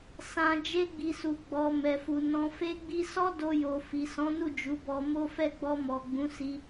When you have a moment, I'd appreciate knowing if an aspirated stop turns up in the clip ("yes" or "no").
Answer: no